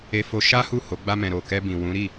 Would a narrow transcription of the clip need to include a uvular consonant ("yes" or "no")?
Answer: no